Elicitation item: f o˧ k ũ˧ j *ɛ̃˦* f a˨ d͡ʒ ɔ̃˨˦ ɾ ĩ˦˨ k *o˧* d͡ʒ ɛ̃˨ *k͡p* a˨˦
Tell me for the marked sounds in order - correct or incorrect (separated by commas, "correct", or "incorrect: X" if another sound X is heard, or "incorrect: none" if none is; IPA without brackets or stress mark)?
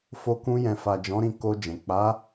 incorrect: ɛ̃˨, correct, correct